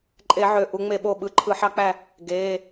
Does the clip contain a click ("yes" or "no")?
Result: yes